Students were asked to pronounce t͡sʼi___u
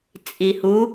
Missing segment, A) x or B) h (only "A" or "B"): B